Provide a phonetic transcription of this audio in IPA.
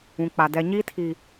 ũ˨k͡pa˨ dɛ˨ɲiː˦tʰi˨

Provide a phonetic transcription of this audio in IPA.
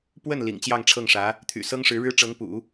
pwə˥˩n lḭ˨˩ŋt͡ɕjɑ˥˧ŋʈ͡ʂʰɤ˥˩ŋʂä˧˥ | t̪ʰy̰˨˩sɤ˥ŋʂɻ̩˧˥ɻɻ̩˥ ʈ͡ʂɤ˧˥ŋpṵ˨˩˦

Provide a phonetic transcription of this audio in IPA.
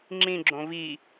ŋ͡ǁĩɡ͡ǁõ vi

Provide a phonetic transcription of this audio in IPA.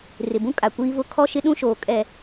rɪ˨bũ˦ kʼa˨ kʷiː˦vʊ˦ kʰɔ˦ʃɪ˦ɗũ˦ʃoː˨ kʼɛ˨

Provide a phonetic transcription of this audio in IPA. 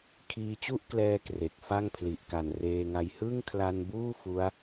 kʰiː˧t͡ɕu˥˩ʔklɛː˧ kre˨˩k̚fa˥˩ŋpʰli˨˩ʔ ka˨˩nreː˧ŋa˧j hɯ˥˩ŋkʰla˧nbuː˥˩ fu˦˥a̯

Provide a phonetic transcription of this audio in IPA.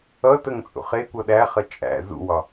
ʌtəŋ t͡sʼṵχekʷʌ ɗæχə t͡ʃʼæ̰ zṵwɒ

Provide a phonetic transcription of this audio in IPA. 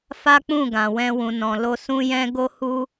fa˦k͡pũ˦˨ɡã˨wɛ̃˧ wũ˨nɔ̃˨lo˧ sũ˦jɛ̃˦ ɡo˦hu˦

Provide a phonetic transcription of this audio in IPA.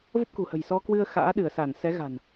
və˦˥p̚kṳ˨˩hə̤˨˩j sɔ˧kwɨ˧ə̯ xa̰ː˧˥ɗɨ˧˩ə̯sa˧˩n sɛ˨˦ɣa̤˨˩n

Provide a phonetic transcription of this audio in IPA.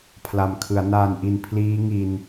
pʰla˨˩mkʰɯ˩˦a̯ naː˨˩nʔi˨˩n pʰliː˦˥ ŋi˧n

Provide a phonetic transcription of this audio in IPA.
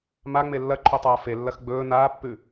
maŋ͡me lːɐǃʰotˤaː felːɐx ɡ͡bɵː naːpːʉ

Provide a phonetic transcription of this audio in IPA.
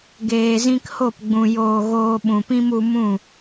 ɡeː˨zĩ˧kho˦˨pɡ͡bũ˨ joː˨ ɣoː˧ɓũ˨pĩ˦m u˧mũ˦˨

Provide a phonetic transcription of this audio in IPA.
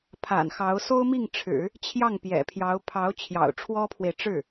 pʰa̰˨˩nxɑ˧˥ʊ̯ so˥ʊ̯mi˥˩ŋʈ͡ʂʰɻ̩˨˩˦ | t͡ɕʰjɑ˥˩ŋpjɛ̰˨˩pʰjɑ˧˥ʊ̯ pʰɑ˧˥ʊ̯ t͡ɕʰjɑ̰˨˩ʊ̯ʈ͡ʂʰwɔ˥pʰwe˨ɪ̯ ʈ͡ʂɻ̩˥˩

